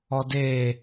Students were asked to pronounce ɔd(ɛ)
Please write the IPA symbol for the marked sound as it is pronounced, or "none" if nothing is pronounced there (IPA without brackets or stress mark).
e